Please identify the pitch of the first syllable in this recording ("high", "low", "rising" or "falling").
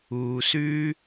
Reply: low